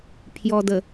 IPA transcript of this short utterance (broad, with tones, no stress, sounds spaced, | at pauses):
pʰ j ɔ˨ d ə˨